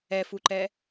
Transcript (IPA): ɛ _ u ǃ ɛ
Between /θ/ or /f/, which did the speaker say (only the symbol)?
f